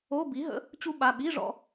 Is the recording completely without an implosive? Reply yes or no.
no